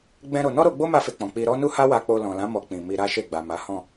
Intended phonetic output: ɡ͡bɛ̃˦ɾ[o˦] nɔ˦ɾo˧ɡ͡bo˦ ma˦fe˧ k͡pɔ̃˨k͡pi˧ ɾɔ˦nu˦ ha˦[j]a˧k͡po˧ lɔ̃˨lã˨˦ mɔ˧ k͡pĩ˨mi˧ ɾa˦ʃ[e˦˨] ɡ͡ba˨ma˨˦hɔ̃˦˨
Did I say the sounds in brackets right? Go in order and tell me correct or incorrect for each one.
incorrect: o˧, incorrect: w, correct

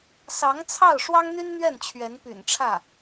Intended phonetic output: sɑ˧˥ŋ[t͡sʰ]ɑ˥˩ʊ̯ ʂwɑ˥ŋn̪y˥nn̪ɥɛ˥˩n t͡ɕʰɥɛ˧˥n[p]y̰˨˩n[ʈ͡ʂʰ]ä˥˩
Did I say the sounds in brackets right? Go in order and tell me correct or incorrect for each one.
correct, correct, correct

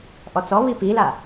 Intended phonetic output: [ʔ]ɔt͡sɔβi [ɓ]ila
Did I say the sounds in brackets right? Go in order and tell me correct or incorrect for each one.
correct, incorrect: p

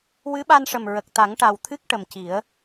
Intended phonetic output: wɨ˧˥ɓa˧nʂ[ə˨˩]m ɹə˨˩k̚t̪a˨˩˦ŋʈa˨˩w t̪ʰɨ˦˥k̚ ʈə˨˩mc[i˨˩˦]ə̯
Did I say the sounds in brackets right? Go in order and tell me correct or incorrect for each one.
correct, correct

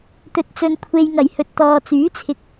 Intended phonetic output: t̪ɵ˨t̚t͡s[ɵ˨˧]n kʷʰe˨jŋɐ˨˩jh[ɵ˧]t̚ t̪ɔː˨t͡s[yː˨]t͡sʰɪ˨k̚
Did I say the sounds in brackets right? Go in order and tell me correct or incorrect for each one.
incorrect: ɵ˨, incorrect: ɵ˨, incorrect: yː˨˥

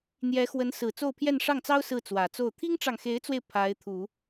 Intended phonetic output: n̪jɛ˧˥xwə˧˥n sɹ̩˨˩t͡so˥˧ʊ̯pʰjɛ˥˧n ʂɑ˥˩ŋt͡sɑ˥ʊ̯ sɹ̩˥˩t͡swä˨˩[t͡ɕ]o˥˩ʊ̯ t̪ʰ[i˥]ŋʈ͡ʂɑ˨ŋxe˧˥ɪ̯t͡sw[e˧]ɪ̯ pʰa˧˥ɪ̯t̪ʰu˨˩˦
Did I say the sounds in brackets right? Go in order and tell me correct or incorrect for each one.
incorrect: t͡s, correct, correct

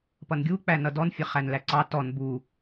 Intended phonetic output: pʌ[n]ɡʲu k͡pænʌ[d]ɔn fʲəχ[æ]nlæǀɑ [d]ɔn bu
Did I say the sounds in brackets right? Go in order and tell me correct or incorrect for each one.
correct, correct, correct, incorrect: t

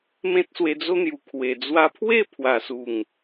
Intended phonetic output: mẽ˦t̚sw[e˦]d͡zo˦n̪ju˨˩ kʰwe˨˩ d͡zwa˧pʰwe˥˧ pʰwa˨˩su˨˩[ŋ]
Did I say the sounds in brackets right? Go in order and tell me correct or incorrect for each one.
incorrect: e˧, correct

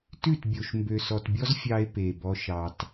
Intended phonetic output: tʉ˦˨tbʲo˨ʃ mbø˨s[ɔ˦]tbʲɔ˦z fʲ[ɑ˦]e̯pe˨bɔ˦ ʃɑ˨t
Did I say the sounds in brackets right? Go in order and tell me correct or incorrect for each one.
incorrect: ɔ˨, correct

